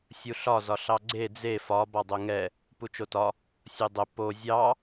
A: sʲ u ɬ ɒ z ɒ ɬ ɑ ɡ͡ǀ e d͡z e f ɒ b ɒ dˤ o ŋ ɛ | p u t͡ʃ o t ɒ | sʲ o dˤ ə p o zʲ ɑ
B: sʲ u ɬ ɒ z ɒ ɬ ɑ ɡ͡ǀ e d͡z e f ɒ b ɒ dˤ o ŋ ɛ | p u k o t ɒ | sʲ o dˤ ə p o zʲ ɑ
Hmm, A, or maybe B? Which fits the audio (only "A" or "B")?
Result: A